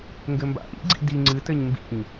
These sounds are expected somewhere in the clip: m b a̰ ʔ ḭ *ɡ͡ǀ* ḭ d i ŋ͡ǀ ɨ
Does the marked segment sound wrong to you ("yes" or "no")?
no